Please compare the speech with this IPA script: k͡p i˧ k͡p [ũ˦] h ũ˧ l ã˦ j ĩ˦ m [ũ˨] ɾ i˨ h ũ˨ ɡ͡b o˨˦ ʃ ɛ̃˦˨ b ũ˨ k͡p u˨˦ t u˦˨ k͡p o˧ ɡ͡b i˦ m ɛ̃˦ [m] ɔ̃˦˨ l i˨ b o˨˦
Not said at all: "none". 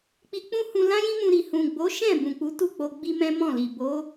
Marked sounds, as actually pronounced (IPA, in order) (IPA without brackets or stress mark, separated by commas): ũ˦, ũ˧, m